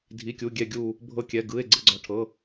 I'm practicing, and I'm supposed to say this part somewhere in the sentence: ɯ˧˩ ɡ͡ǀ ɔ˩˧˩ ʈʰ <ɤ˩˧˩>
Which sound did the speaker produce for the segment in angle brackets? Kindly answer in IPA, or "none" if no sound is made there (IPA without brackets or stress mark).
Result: ɤ˩˧˩